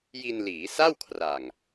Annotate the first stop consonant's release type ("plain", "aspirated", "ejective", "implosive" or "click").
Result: aspirated